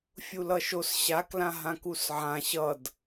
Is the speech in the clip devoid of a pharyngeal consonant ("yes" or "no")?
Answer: no